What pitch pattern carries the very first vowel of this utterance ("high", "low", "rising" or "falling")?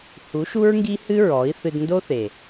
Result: rising